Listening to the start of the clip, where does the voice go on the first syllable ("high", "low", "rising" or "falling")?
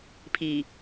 low